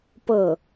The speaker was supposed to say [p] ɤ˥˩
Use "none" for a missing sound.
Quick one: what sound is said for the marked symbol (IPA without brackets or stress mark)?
p